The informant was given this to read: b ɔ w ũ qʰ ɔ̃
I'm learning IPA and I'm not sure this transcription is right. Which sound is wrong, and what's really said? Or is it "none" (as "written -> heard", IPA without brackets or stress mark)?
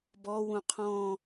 none